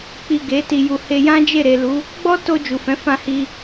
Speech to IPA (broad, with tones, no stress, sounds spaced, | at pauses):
k͡p i˨ ɡ e˨˦ t i˧ j u˨ h e˧ j ã˦ d͡ʒ e˦˨ ɾ e˨ l u˨˦ | ɡ͡b ɔ˦ t o˧ d͡ʒ u˨ f ɛ̃˨˦ f ã˧ h i˧